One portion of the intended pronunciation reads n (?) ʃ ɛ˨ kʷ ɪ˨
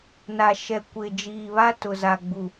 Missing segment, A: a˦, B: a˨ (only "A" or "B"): B